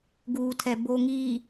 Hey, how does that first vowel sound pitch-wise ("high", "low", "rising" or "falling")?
low